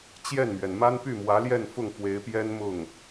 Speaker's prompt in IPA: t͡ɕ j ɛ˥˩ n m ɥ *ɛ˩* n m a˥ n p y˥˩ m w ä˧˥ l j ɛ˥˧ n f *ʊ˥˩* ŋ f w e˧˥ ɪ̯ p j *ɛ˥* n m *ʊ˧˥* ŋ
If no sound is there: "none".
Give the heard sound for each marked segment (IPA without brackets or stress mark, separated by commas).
ɛ˩, ʊ˥˩, ɛ˥, ʊ˥˩